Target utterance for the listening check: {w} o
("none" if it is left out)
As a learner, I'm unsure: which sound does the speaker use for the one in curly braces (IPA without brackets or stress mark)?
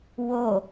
w